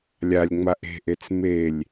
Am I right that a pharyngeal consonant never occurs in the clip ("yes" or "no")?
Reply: yes